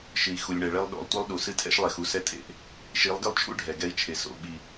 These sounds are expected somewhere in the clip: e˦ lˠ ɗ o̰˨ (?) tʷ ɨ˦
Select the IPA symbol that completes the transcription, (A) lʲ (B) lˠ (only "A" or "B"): B